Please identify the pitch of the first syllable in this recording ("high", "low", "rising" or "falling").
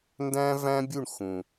high